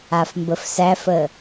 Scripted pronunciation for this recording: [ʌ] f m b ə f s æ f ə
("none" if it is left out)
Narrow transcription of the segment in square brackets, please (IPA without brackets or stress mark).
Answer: a